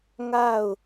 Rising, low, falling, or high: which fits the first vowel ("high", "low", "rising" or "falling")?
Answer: falling